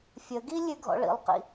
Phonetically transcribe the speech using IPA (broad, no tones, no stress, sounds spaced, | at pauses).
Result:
fʲ ə ɡ i lʲ ʉ ɡʱ ɔ̰ ɭ ḭ lˠ q ḭ